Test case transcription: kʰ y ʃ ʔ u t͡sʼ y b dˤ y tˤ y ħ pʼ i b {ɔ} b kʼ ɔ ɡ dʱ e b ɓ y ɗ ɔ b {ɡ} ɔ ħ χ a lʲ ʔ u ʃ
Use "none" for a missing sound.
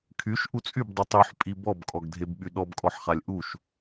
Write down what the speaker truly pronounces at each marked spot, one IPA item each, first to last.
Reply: ɔ, kʼ

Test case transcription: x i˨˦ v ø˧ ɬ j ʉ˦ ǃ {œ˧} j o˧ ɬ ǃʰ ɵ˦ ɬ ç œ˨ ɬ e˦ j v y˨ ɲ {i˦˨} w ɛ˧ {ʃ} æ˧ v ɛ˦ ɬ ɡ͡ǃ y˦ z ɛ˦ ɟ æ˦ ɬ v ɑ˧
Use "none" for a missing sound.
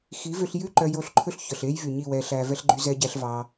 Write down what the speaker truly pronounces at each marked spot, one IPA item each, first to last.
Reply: œ˧, i˦˨, ɬ

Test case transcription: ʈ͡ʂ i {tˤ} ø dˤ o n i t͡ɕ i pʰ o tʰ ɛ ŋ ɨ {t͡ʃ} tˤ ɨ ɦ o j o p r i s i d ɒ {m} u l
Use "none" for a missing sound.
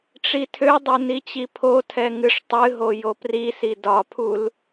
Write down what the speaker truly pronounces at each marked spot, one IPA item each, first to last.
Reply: tʰ, ʂ, pʰ

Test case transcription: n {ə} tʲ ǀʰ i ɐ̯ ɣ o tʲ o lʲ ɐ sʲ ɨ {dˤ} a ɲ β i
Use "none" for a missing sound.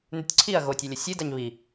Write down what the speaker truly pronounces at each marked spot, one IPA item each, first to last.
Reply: ʉ, d

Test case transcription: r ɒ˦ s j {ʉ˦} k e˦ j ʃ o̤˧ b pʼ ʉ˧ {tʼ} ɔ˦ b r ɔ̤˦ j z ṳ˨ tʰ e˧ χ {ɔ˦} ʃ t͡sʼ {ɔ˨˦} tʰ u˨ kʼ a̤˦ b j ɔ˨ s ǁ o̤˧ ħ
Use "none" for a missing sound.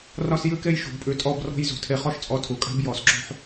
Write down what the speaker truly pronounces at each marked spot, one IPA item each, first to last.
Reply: ʉ˦, tʼ, ɔ˦, ɔ˧

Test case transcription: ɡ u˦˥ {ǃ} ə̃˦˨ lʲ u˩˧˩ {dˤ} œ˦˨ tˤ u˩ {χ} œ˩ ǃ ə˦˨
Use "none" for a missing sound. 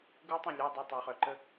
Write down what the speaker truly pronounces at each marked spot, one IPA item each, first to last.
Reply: tˤ, dˤ, χ

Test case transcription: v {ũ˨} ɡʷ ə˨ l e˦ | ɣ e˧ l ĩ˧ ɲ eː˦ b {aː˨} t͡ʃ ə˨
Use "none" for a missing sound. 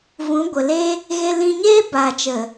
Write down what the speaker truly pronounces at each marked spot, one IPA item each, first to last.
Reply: ũ˨˦, aː˨

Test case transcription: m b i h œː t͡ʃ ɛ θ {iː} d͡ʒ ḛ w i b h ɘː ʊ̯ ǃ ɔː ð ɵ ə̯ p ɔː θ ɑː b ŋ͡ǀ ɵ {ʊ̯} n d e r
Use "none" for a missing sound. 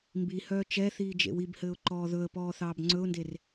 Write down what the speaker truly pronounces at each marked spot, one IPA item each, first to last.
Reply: iː, ʊ̯

